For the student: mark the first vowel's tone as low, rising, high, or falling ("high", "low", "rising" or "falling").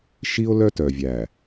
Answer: high